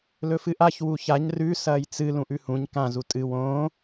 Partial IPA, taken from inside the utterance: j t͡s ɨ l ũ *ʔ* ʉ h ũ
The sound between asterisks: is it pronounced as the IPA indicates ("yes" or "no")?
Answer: yes